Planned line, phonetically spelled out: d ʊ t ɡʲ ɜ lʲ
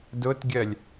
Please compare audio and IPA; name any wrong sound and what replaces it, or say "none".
none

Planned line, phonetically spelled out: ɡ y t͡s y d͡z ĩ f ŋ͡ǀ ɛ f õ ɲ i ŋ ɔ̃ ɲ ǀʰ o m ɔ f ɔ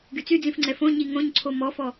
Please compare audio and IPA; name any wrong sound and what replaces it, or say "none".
ɔ̃ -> õ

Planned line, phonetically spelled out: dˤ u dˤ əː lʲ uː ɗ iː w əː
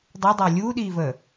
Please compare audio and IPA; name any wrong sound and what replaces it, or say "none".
w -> v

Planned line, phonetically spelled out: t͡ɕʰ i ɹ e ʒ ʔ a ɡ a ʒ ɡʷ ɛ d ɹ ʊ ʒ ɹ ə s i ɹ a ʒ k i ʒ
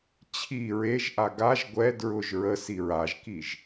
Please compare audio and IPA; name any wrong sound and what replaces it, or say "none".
none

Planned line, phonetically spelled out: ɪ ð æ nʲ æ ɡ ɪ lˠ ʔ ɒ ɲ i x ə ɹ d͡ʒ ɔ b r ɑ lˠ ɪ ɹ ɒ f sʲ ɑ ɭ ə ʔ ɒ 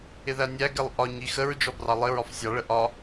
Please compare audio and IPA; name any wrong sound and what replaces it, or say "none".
none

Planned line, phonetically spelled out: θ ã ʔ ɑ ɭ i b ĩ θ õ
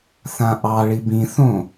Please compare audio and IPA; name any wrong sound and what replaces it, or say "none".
none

